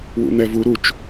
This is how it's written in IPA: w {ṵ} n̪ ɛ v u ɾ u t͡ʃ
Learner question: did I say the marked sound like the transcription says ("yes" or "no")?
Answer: yes